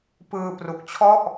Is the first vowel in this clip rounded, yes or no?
no